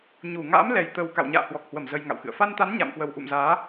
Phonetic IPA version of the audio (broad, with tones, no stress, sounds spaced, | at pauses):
ɲ u˧˩ ŋ a̰ː˧˥ m l ɛ˨˩ j t̪ ə˨˩ w k a̰˧˨ w ɲ a̰ː˧˨ h w ɔ˨˩ k̚ h w ə˧˩ m z ə˧ j ŋ a̰˧˨ w x ɨ̰˧˨ ə̯ f a˧ n t̪ a˨˦ n ɲ a̰˧˨ m k w ə˨˩ w ʔ ṵ˧˨ m z aː˨˦